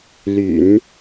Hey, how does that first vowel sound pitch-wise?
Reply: low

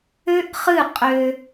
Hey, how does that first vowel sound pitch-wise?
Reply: high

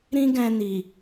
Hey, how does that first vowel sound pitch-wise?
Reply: high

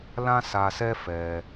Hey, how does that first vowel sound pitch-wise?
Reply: high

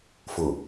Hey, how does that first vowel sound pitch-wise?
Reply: low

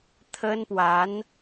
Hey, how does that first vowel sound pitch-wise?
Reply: high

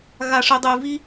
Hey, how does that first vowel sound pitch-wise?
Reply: low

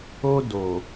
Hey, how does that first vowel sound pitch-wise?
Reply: high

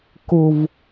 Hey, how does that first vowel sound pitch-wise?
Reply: low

